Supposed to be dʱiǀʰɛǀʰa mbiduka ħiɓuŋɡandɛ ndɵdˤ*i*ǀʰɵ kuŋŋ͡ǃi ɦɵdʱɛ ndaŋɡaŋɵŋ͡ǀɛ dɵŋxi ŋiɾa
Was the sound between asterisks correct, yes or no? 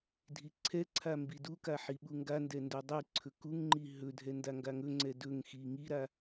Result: yes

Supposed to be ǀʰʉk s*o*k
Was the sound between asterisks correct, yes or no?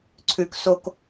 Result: yes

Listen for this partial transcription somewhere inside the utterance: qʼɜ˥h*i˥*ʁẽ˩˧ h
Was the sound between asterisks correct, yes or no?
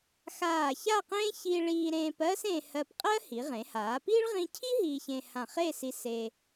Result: no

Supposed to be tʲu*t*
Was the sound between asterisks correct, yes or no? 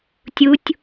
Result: no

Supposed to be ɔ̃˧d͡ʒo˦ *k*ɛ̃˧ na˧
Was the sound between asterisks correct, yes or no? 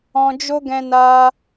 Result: no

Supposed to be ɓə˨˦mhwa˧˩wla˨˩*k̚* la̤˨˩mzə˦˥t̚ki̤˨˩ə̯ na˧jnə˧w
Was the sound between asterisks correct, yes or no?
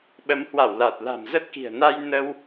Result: no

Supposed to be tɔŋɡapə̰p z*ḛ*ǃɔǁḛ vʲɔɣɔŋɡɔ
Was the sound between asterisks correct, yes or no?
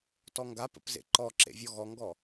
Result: yes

